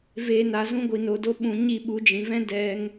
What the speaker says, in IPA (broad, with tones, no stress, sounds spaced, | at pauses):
v eː˨ n a˨ z ũ˧ ɡʷ i˨ n o˨ d o˧ ɓ ũ˨ ɲ i˦˨ ɓ u˨˦ d͡ʒ ĩ˨ v ɛ̃˦ d ɛ˦ ŋ